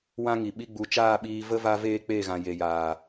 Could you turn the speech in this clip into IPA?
wã˦ ŋi˨ɓi˦ɡ͡bu˧ t͡ʃaː˦˨ɓiː˧ və˦ va˧ veː˦k͡pe˦˨ɣã˨ je˨jaː˨

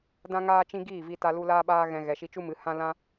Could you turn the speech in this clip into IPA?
dã˦ŋaː˦t͡ʃĩ˦ ɡiː˦˨vi˧ta˧lu˧ laː˦ɓaː˦ɣɛ̃˧ ɣɛ˨ʃi˧t͡ʃu˦mɨ˨˦ hã˦ lã˦

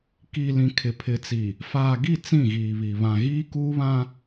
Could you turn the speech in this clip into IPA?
ki˨lĩ˨ kʰɪ˨pʰɪ˨t͡si˨ | faː˨ɡi˦˨ t͡sĩ˦˨ɣiː˨βi˨ βã˨ɣiː˦ kuː˦βã˦

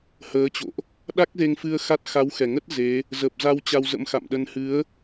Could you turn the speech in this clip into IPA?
həː˨˦t͡ɕo̰˧˨ʔ | ɗa˦˥k̚ze˧ŋfɨ˧ə̯ xa˦˥t̚ xa˨˦wxɛ˨˩ŋə˦˥t̚ ze˨˦ | zə˨˩p̚za˧w t͡ɕa˧wzə̰˧˥mxa̰˧˨mɗə˧n hɨ˨˦ə̯

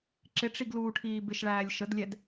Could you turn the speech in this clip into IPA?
ǁɪʈ͡ʂiɡ luːʈʰiːbɪʃɭæːlʲ ʃədlʲɛd

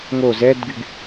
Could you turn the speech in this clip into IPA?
ŋo zɛdɡyɡ

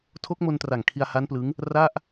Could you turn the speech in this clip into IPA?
tʰo˦˥k̚mo˧ntra˨˩ŋ kʰi˧a̯ha˦˥nplɯ˦˥ŋ | ra˥˩ʔ

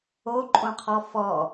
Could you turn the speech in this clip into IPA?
oǃʼõqʰɔ fɔ

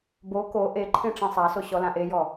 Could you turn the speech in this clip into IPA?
bo ko ʔeǃʰẽ ʈ͡ʂẽsˤaso ɕɔlãʔejɔ

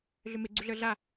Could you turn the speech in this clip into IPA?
ɮʏmeɡ͡ǀuɮə˞ ɮa

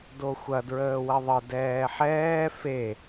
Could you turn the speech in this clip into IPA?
doxʷɐ dɹəːwɐðˤə dɛːħɛː fe

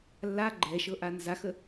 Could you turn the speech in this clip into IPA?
lːa ɡ͡ǃɛʃɤ ʔanzaxə

